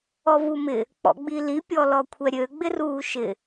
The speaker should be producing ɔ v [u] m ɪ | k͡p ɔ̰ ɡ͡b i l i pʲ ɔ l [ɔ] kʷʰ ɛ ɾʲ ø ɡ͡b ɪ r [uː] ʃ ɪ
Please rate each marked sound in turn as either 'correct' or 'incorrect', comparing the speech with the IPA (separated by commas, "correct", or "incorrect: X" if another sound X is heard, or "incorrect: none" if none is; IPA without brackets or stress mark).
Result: correct, correct, correct